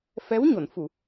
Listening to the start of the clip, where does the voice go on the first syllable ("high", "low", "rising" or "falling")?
rising